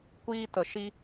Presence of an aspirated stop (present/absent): absent